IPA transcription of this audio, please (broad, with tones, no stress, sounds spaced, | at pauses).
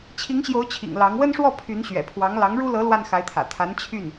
t͡ɕʰ i˧˥ ŋ ɕ j o˧˥ ʊ̯ t͡ɕʰ ḭ˨˩ ŋ l ɑ˧˥ ŋ w ə˥ n ʂ w ɔ˥˩ pʰ y˧˥ n ɕ ɥ ɛ̰˨˩ pʰ w ɑ˧˥ ŋ l ɑ˧˥ ŋ ɻ u˥ l ɤ˧˥ l w a˥˩ n x a˧˥ ɪ̯ t̪ʰ ä̰˨˩ t̪ʰ a˧˥ n t͡ɕʰ y˥˩ n